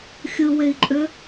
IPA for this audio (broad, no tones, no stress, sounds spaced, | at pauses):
xʲ ɯ w e i̯ ǃʼ ø